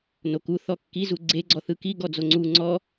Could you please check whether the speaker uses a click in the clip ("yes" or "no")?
yes